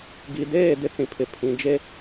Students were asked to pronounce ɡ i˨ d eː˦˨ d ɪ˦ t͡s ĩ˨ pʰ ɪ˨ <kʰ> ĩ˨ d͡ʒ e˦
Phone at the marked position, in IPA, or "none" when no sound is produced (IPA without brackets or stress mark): pʰ